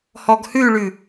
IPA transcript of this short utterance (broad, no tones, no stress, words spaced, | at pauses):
hɔɡhʉɭʉ